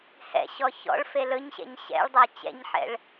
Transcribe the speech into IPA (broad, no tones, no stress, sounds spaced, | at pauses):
h ɛ̰ ɕ ɔ ç ɔ̰ ɭ f e l ɵ ɲ ɕ ɛ̰ ɲ ɕ ɛ̰ ɭ dˤ a t͡ɕ ɛ̰ ɲ ħ ɛ̰ ɭ